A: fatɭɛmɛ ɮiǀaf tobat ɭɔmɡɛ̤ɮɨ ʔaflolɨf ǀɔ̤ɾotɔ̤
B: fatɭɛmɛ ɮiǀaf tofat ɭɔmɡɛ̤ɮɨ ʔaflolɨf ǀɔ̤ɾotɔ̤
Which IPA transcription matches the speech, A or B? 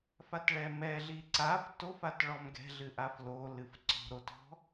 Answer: B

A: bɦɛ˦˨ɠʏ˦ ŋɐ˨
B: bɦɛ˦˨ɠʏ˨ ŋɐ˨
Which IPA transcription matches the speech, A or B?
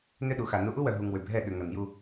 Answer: B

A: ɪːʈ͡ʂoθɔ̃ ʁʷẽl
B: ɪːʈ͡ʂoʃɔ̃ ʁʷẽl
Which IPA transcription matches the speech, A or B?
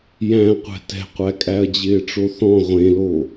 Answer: A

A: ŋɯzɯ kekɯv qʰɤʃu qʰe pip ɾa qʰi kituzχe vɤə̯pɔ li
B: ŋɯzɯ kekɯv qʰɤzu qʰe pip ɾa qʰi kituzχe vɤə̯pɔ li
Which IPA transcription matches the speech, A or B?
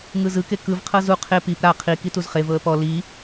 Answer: B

